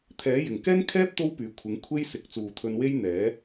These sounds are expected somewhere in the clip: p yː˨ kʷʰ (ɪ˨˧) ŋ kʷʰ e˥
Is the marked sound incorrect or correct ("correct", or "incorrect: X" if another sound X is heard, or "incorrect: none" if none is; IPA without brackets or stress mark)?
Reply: correct